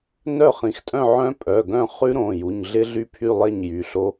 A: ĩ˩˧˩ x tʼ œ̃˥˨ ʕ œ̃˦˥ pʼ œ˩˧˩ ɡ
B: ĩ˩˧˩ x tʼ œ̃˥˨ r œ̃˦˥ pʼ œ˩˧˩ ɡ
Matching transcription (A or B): A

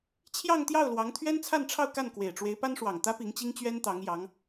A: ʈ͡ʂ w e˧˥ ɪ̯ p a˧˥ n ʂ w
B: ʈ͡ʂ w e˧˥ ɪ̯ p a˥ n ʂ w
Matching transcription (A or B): B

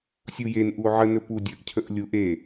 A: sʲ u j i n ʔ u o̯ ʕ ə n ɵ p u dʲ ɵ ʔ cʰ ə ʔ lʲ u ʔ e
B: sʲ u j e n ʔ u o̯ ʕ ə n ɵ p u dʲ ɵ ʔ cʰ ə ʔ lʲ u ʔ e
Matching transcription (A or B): B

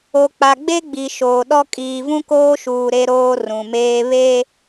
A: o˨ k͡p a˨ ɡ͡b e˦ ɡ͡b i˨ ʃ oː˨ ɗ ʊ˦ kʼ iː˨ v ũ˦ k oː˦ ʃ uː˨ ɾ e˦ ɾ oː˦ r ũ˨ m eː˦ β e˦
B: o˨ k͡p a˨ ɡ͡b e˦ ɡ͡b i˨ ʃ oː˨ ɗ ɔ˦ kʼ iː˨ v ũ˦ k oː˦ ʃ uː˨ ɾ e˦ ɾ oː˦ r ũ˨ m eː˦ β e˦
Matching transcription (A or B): B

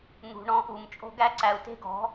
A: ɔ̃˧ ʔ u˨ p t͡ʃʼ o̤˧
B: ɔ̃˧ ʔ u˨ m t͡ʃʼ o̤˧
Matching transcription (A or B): B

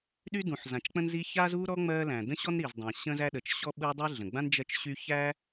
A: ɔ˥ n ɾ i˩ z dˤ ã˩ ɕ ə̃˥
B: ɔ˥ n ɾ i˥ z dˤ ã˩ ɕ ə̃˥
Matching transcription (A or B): A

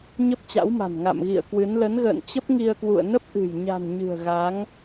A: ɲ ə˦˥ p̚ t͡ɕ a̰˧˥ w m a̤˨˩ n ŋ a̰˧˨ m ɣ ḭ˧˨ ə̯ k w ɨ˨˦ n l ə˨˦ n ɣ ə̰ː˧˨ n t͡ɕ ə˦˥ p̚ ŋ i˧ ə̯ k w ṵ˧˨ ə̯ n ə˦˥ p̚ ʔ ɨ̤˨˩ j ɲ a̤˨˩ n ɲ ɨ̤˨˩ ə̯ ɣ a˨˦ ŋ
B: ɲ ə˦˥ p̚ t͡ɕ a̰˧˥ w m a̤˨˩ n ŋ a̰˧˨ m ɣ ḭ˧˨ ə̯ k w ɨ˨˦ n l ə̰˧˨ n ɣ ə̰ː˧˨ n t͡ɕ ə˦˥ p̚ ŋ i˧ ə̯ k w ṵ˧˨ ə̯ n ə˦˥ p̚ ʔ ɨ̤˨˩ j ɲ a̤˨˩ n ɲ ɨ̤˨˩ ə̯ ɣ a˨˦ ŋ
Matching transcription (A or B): A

